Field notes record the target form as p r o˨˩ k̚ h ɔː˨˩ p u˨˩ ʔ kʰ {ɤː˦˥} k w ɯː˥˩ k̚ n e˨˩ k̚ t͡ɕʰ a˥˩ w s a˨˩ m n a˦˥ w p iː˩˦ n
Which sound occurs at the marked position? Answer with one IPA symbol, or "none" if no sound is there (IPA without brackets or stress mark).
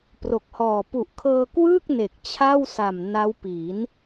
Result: ɤː˧